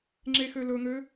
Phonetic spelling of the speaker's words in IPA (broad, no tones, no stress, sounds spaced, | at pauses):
ŋ͡ǁ e x ø l ɵ ŋ ø